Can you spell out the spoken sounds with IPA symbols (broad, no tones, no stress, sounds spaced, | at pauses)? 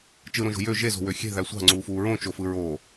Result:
t͡ʃ ɯ ɾ õ ʒ o̤ j ø ʒ e z o̤ w ø xʲ e̤ ð æ sʷ ɑ̤ ŋ͡ǀ uː f uː ɹ õ t͡ʃ o f ɯ ɹ oː